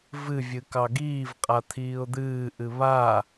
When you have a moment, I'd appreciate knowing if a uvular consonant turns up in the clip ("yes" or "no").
yes